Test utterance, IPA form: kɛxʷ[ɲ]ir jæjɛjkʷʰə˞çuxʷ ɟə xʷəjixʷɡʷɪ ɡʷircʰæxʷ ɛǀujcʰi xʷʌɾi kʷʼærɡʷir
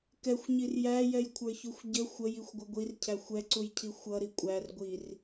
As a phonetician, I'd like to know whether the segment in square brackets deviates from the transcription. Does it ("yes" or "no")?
no